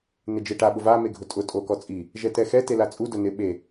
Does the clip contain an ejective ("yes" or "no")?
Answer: yes